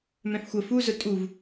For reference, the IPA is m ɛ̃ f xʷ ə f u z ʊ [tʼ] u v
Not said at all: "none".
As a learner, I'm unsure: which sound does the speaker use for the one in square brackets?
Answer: tʼ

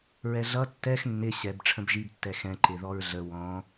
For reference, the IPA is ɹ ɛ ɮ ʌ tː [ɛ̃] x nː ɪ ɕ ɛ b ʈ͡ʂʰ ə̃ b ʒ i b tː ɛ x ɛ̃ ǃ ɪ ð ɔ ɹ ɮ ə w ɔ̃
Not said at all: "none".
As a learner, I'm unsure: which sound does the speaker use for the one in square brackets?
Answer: ɛ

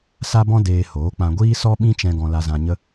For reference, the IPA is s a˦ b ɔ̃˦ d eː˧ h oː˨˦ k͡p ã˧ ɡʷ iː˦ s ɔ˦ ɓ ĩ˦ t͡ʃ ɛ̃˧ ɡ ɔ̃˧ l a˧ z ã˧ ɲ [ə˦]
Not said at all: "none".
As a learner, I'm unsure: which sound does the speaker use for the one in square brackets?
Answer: ə˦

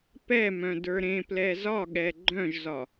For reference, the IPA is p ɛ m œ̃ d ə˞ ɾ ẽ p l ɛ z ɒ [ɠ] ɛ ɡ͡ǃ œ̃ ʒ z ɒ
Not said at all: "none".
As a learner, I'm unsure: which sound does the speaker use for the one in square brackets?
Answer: ɠ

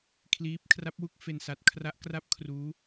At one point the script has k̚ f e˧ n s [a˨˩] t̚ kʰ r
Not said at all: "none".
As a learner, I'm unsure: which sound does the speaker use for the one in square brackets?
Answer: a˨˩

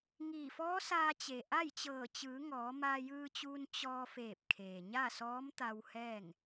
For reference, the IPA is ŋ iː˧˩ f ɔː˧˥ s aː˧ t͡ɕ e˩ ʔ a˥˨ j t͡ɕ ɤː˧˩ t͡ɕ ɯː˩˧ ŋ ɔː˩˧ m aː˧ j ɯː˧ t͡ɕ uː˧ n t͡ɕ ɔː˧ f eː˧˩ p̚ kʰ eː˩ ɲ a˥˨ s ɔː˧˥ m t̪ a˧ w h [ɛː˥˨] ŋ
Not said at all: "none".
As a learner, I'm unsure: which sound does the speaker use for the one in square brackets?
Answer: ɛː˥˨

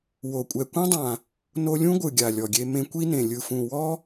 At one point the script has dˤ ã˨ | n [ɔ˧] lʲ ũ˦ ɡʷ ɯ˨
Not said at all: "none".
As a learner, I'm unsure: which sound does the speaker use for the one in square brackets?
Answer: o˧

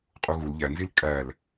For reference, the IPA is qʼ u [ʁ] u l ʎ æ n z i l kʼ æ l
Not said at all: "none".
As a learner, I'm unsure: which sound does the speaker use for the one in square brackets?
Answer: ɣ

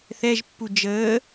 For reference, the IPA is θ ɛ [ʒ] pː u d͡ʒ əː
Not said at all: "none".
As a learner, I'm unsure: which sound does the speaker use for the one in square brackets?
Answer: ʒ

